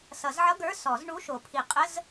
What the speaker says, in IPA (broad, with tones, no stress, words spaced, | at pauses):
sʌ˨˩˦zʕʌ˧˥˧ ɡə˞˧˥˧sɔ˨˩˦z ɳu˧˥˧ ʃo˨˩˦pʰi˨˩˦ qʼə˧˥˧z